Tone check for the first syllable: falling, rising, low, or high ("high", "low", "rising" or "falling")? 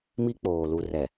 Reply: high